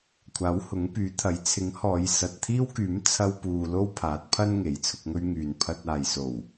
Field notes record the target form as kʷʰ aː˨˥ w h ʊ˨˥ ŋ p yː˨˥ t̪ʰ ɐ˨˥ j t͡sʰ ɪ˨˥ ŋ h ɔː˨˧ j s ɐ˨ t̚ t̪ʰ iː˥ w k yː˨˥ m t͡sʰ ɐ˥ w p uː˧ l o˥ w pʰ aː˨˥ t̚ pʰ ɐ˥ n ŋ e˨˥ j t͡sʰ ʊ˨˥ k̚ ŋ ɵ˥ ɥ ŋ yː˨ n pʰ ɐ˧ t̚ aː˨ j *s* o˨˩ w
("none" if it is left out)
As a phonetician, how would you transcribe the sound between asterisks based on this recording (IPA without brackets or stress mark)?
s